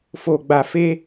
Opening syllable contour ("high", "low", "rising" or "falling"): low